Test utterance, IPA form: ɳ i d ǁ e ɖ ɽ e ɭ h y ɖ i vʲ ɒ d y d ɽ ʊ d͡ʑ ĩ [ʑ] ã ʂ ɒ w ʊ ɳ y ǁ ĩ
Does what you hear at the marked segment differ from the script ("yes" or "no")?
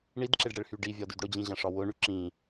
no